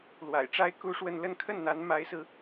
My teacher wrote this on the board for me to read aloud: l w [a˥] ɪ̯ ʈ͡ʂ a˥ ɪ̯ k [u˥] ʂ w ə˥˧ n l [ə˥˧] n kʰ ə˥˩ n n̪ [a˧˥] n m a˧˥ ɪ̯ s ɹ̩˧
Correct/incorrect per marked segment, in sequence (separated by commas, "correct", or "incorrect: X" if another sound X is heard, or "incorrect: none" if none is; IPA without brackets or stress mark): incorrect: a̰˨˩, correct, correct, correct